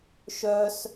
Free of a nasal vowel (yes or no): yes